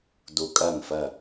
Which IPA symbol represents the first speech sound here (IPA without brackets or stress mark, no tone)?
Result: d